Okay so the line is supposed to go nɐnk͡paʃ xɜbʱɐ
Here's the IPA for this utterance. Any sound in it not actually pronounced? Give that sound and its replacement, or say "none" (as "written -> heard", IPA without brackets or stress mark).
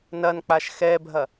ɜ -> ɛ